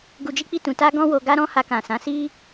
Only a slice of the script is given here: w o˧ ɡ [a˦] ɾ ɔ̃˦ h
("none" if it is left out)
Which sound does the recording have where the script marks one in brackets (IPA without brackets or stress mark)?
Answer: a˦